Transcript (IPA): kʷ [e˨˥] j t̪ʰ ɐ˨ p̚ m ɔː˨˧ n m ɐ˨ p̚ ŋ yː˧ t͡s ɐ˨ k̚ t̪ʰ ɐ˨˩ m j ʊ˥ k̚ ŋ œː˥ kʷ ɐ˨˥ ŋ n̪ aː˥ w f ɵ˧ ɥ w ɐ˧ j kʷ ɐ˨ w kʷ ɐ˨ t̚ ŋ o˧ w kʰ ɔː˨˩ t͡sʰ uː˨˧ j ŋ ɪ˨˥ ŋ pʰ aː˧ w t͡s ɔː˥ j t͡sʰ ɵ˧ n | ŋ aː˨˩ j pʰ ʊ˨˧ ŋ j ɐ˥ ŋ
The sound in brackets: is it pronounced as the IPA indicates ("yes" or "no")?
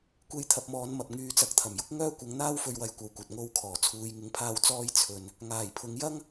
no